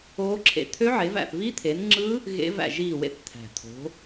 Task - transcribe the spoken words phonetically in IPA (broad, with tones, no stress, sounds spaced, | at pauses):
oː˦˥ ǁʰ ḛ˦˨ t̪ʰ ø˦˥ ʕ e˨˦ v æ̰˦˨ θ v i˦˥ t̪ʰ e˨˦ n ŋ͡ǁ ɯ˦˥ | ɣ ḛ˦˥ v æ̰˦˨ ʒ iː˦˨ w ḛ˦˨ θ t̪ʰ æ̤˨˩ t̪ʰ o̤˨˦